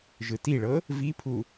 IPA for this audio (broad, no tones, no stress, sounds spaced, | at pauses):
ʒ ɯ t i ɭ ɤ | v i pʰ u